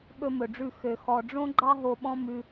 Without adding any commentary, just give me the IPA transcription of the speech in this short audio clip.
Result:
ɓ ɵ˦ m ɵ˨ ɖ͡ʐ ʉ˦˨ x ø˨ x ɔ˨ ɖ͡ʐ õ˦ ɡ͡ǃ ɑ˦ ɦ o˧ ɓ ɔ̃˦ m ʉ˧

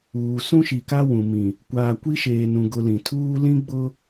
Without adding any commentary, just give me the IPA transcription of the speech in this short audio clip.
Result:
uː˨ s ũ˦ ʃ i˨ k a˦ w ũ˨ m ĩ˨ | kʷ aː˨ kʷ i˦ ʃ eː˨ n ũ˨ ɡ ʊ˦ l ĩ˨ tʰ uː˦ l ĩ˦ ɡ͡b ʊ˦

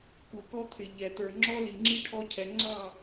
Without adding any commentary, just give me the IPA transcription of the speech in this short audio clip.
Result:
k u˨ k ɔ˦ t̪ʰ ɪ˨ ʎ ɛ˨ t̪ ə˞˨ ŋ͡ǁ ɔ˦ l i˨ ŋ͡ǁ i˦ ʈʰ ɔ˧ cʰ ɛ˨ ŋ͡ǀ ɑ˦˨

